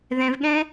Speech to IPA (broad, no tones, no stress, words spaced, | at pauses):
ðɛ̃vɠɛ̃